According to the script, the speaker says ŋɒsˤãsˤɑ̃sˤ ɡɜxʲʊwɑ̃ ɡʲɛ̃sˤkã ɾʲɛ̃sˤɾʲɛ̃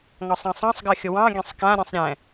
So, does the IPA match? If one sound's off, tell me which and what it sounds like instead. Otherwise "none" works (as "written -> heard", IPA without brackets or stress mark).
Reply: none